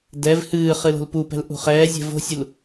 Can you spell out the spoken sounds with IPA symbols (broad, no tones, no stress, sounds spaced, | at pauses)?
d ɛ v h ɨː χ ɨ l o̤ l p u p ɛ̤ l ʔ ṳ χ ɛː zʲ ɛ̤ v o̤ sʲ u l